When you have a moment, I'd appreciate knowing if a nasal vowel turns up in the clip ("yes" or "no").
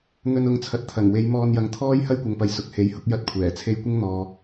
no